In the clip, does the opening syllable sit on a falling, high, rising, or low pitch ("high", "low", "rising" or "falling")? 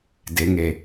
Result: rising